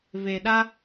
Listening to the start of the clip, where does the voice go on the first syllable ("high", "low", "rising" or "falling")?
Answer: low